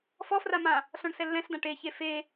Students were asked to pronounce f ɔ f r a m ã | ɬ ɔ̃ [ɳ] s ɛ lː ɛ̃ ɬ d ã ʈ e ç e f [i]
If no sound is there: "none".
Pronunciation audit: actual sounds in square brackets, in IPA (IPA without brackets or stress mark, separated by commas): ɳ, e